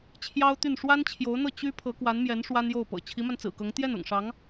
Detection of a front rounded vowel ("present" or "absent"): present